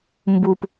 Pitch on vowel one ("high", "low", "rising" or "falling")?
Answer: low